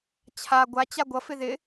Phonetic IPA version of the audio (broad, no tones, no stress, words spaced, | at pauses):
t͡ɕʰa ɡʷat͡ɕa ɡʷʌfɪ ðɪ